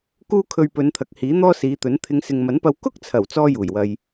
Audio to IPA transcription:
k uː˥ kʰ ɵ˧ ɥ p ɵ˨˧ n t̪ʰ ɐ˨ k̚ h iː˨˥ n̪ ɔː˥ s iː˨˧ t̪ ɵ˨˥ n t̪ʰ ɪ˨˧ ŋ s ɪ˨ ŋ m ɐ˨˥ n p ɐ˧ w k ʊ˥ k̚ t͡sʰ ɐ˨˩ w t͡s ɔː˥ j uː˨˩ j w ɐ˧ j

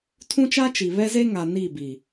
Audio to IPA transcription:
tʰ ũ˦ t͡ʃ a˦ t͡ʃ i˨ β ɛ˦ z e˦ ŋ a˨ n i˦˨ b i˨

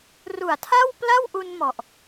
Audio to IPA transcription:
r u˨˩ a̯ tʰ a˥˩ w p l a˥˩ w ʔ u˧ n m ɔ˨˩ ʔ

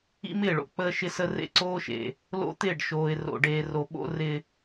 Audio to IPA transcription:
ḭ˦ m ɪː˦˨ ɭ o̰˨ k͡p əː˦ ʃ ɪ˦ s ə˦ r ḛ˦ ǀ oː˦ ʃ ḛ˨ | l o̰˦ t̪ ɪː˦˨ ɖ ʃ oː˨ ɪ̯ r o̰˨ ɖ eː˨ r o˨ ɓ o̰˦ r ɪ˦

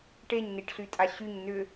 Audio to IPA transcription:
ʈ e ɲ n i ʈ ɬ y tʼ a ɕ y ɲ n ʏ

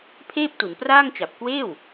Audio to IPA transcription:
pʰ eː˥˩ p̚ t u˩˦ n p r aː˥˩ ŋ t͡ɕ a˨˩ p̚ k w eː˥˩ w

